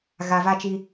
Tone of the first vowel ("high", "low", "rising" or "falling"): low